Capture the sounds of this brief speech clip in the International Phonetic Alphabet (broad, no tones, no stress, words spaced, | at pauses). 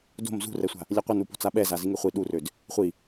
do̤m zṳrɛsʷa̤ | lʲɛqʷənupo̤ t͡saɓɛza ziŋeχʷi ɗurød | χʷi